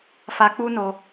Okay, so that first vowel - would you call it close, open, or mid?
open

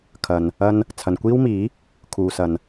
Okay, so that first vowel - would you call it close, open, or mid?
open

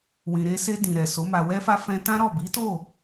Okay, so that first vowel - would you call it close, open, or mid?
close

